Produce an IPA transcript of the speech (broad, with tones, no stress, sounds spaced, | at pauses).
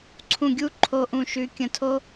ǀʰ ũ˧˩ ɡʲ u˥˧ ǃʰ o˧ ʔ ũ˧˩ ʃ ʉ˧ kʲ ə̃˧˩ tʰ o˥